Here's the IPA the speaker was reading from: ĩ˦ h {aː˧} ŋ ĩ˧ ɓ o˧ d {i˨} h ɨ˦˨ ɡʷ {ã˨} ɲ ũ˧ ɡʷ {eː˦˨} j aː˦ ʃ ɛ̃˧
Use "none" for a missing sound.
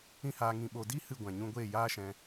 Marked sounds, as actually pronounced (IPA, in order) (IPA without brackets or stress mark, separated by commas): aː˧, i˦, ã˨, eː˦˨